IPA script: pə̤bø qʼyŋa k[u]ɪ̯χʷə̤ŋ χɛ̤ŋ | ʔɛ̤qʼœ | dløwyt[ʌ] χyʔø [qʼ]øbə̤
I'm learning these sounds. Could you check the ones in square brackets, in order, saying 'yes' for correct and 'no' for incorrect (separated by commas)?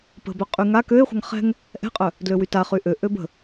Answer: no, no, no